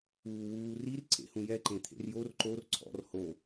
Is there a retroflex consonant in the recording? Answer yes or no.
no